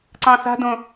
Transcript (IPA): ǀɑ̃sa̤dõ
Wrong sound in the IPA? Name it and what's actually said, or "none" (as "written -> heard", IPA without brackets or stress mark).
none